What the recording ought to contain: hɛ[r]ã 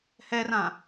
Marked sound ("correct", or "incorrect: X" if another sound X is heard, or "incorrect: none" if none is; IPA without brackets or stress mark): correct